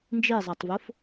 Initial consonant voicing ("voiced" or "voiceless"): voiced